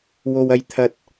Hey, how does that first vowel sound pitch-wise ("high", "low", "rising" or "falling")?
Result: high